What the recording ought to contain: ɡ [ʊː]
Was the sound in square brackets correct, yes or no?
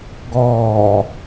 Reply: no